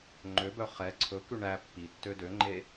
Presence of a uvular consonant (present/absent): present